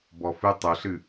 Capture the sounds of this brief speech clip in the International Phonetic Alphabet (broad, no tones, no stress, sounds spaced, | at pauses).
b ɔ f ɨ tˤ ʊ ɬ ɨ